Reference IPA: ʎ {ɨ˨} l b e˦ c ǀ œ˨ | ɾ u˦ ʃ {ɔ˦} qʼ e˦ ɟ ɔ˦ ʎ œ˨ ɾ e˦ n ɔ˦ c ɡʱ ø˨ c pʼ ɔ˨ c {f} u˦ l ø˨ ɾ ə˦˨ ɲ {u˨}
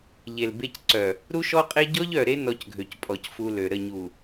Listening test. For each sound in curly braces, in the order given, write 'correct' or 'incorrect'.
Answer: incorrect, correct, correct, correct

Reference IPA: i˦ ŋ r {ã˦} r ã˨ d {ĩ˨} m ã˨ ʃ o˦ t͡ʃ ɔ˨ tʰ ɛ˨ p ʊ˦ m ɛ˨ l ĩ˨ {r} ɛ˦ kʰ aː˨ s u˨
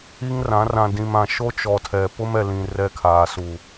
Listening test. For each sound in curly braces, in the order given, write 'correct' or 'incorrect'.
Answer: incorrect, correct, correct

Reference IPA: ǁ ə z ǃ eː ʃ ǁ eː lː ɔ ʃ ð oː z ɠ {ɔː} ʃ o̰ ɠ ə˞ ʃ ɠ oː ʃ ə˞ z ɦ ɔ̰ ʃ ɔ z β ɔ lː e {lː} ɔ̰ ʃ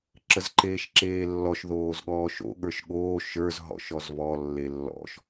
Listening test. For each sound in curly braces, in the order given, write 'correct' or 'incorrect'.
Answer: correct, correct

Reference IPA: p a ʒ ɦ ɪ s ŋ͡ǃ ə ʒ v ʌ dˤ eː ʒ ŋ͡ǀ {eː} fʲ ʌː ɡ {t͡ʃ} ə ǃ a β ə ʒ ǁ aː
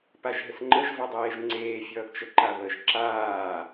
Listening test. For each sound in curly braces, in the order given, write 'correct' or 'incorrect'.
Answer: correct, correct

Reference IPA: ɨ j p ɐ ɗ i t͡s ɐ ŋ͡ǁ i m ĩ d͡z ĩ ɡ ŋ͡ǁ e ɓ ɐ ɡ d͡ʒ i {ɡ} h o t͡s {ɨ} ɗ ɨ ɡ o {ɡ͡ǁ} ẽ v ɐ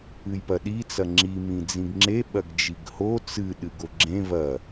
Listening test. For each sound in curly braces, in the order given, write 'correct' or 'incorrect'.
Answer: correct, correct, correct

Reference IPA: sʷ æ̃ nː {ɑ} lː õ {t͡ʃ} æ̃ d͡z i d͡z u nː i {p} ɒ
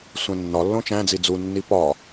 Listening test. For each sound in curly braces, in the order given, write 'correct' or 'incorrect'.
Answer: incorrect, correct, correct

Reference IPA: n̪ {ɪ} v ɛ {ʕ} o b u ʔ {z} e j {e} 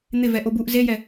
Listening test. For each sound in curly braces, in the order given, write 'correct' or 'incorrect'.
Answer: correct, incorrect, correct, incorrect

